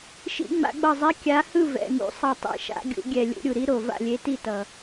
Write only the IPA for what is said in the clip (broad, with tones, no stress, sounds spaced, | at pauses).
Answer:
ʃ ḭ˧˩˧ ŋ͡m a̰˧˩˧ ɡ͡b ʌ˧˩ zˤ ɛ˨˦ kʲ a˨˦ h ɯ˥˨ v ɛ̰˩˧˩ ŋ ṵ˧˩˧ sˤ ʌ˧˩ tˤ ḭ˧˩ ʃ a̰˨˦ ɡʲ ṵ˨˦ ɡʲ ɛ˧˩ lʲ ṵ˧˩˧ ɾʲ u˩ ɾ i˨˦ ɾ o˧˩ v a̰˥˨ lʲ e˨˦ t i˥˨ t ʌ˩